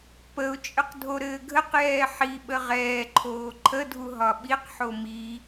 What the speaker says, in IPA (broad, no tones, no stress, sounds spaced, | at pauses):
p ə ʊ̯ t͡ʃʼ ə q dʱ o ɾ ɘː ɡʱ ə q j ɛː ħ i ɓ ə ʁ ɛː ǃʰ oː ǃʰ ə dʱ u ɦ ɒ ɓ i q ħ o m i